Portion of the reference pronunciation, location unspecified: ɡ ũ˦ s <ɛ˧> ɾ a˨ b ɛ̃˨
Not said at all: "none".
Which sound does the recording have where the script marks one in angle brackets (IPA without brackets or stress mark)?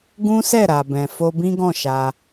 ɛ˦˨